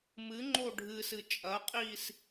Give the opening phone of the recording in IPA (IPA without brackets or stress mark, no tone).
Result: m